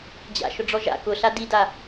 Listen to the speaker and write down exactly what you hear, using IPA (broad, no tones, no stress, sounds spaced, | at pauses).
d͡ʑ a̰ ʃ ʊ ɖ͡ʐ ɔ ʒ a̰ k ʊ ɬ a d i d a